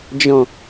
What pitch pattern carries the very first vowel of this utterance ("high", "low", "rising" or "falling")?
low